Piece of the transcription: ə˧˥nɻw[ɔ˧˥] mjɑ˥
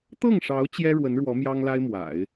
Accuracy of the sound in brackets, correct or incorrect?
correct